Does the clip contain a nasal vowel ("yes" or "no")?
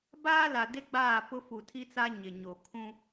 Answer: yes